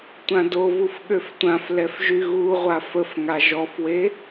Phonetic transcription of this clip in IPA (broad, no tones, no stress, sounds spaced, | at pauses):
tʷ ã d o v u f ɠ ø f tʷ ã f l ɛ f ʒ y ɣ u ʁʷ a f ə f ŋ a ʒ ɔ f w e